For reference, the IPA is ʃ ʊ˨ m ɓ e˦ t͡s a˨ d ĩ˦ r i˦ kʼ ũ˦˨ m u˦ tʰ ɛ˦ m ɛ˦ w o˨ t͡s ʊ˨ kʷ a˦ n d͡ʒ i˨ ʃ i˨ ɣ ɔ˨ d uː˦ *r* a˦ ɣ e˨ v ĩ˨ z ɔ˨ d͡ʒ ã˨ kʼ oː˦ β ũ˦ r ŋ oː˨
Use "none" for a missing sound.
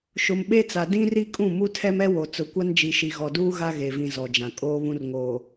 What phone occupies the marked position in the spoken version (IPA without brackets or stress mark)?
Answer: ɣ